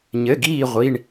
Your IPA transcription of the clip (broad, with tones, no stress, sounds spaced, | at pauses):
ɲ ɘ˧˥˧ ɡ iː˥˧ ʁʷ i˧˥˧ ɳ